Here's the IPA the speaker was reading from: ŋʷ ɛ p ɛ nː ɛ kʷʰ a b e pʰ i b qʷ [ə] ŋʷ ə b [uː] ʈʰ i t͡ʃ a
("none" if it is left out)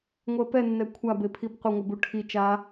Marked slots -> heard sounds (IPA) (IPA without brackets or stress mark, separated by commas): ə, u